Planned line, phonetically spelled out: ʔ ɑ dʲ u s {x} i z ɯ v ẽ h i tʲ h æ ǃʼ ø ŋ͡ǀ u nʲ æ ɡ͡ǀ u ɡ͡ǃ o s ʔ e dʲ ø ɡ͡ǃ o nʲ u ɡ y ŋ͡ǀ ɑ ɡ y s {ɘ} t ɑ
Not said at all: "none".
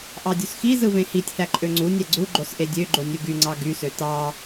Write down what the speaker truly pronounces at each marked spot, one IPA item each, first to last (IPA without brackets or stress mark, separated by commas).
x, ø